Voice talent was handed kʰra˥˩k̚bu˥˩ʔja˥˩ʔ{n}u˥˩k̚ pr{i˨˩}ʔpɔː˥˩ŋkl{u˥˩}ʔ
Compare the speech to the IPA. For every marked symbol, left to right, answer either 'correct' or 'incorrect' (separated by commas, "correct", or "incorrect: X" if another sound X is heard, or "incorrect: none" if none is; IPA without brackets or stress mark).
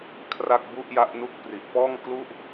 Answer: correct, correct, correct